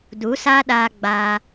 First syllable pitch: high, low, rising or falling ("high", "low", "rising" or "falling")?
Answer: rising